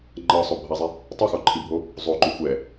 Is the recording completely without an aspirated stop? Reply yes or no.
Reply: no